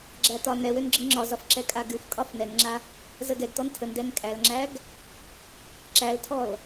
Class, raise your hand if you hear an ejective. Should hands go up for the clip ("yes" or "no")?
yes